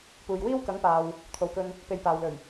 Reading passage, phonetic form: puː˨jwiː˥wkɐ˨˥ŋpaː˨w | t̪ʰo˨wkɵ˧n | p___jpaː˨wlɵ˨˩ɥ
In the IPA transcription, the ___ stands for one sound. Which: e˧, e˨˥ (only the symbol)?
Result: e˧